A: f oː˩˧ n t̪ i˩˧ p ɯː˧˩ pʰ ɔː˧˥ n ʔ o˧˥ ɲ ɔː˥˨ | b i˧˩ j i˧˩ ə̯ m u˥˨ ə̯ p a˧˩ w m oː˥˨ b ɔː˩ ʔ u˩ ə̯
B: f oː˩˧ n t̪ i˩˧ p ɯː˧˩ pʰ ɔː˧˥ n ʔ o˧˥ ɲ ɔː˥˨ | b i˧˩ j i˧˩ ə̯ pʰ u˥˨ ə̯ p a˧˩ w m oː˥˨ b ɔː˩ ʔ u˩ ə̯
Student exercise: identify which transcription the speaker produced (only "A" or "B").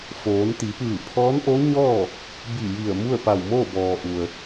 A